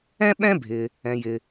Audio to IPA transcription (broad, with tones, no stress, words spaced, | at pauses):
ɛ̃˥ɓɛ̃˥bʱɪ˩ | ɛ̃˩jɪ˩